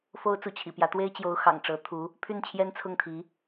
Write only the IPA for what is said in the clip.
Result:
f o˥ ʊ̯ t͡s u˧˥ t͡ɕʰ ḭ˨˩ p j ä˧˥ t̪ w e˥ ɪ̯ t͡ɕ j o˧˥ ʊ̯ x ɑ̰˨˩ ŋ ʈ͡ʂ ɤ˧˥ t̪ʰ u˧˥ | pʰ y˥˩ n t͡ɕʰ j ɛ˥ n t͡sʰ ʊ˥˩ ŋ t̪ʰ i˧˥

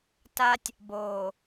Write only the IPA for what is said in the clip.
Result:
t a˦ tʲ | b oː˨

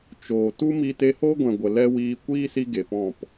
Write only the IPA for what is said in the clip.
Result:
t͡ʃ oː˨ t u˦ m i˧ t e˧ h oː˦ ɡʷ ɛ̃˨ ɡʷ ə˨ l ɛ˦ w iː˧ kʷ iː˦ s i˧ ɡ e˨ p ɔ̃˦˨ p

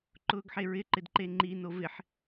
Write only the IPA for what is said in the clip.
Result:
ǃ ʊː ɡ ħ e ɹ ɪ ǃ ɪ d ǃ e ŋ͡ǃ i n o v ɪ ħ

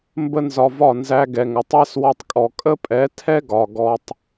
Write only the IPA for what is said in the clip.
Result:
m b ə˦ n z ɒ˧ v ɒ˦˨ n z æ˦ ɡ ɛ˧ ŋ ə˨ tˤ æ˦ s w ɒ˧ tˤ kʼ ɔ˨ kʼ ə˦ pʼ ɛ˨˦ tʰ ɛ˦ ɡ ɒ˨ ɡ ɔ˧ tˤ

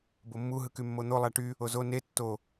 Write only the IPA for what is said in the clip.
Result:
b o mː u ɦ ɯ k y mː o n̪ o lˠ æ ʈ y | o z o n e tː o

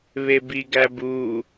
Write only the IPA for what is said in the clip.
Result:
β e b i ɡ æ b u

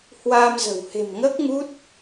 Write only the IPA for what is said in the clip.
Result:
h w aː˧ m z ə̤˨˩ w h e̤˨˩ m ŋ əː˦˥ k̚ ŋ u˦˥ t̚

